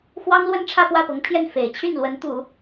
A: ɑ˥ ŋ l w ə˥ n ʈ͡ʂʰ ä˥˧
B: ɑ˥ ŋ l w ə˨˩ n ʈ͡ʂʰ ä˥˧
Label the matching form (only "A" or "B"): A